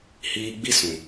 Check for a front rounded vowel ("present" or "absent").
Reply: absent